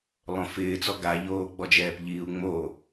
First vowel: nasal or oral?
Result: nasal